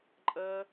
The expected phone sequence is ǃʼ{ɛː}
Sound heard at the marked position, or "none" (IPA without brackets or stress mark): əː